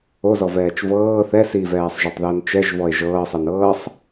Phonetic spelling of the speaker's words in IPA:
o z ɔ v ɛː t͡ʃ v ɤː θ ɛ s i v ɛː sˤ ʒ a tˤ ð əː n t͡ʃ ɛ ʒ v ɔ e̯ ʒ ɤː sˤ ɛ n ɤː sˤ

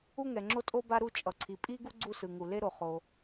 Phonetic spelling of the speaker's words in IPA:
u˥ ŋ ɛ˩ ŋ͡ǁ o˥ tʼ o˥ b a˥ ɾ u˥ t͡ʃʼ ʌ˩ ǀʰ i˩ pʼ i˥ ɡ u˥ ɡ͡ǀ u˥ s ɯ˩ ŋ u˩ l e˥ ɾ o˩ χ o˩

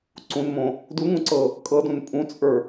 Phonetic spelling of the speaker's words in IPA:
ǀ ũ n m õ | d u ŋ ũ ǀ ɤ | kʼ ɤ d ũ n pʼ ũ t͡sʼ ə˞

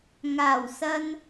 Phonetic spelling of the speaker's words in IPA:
ŋ aː˨˩ w s ɐ˧ n

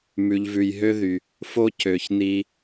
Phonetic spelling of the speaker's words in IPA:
m ʉ˨ ʎ v ʉ˨ j ɦ ø˦ ð y˨ | f o˦ cʰ ø˨ ç n i˧

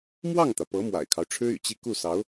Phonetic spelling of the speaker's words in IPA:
m w ɑ˥˩ ŋ t̪ ä˩ p ɤ˧˥ m w a̰˨˩ ɪ̯ kʰ ɑ˦ ʊ̯ ʈ͡ʂʰ ɻ̩˥ y̰˨˩ t͡ɕ i˥˧ k u˥˩ s ɑ˧˥ ʊ̯

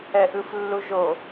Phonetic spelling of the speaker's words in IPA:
ɛ ʔ ɯ f lː u ʒ o

